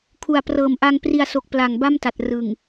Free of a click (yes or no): yes